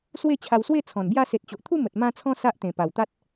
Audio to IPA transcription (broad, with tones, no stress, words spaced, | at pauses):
swe˥˧t͡ɕʰa˧wswe˥˧ t͡sʰɔ̃˨˩nbja˥˧ se˨t̚t͡ɕo˨ʔt̪ʰu˥˧mə˨t̚ mã˧t͡sʰɔ̃˧ sa˦ʔt̪ẽ˨˩pa˨˩w t̪a˦t̚